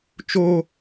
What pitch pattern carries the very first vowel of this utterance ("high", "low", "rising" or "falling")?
high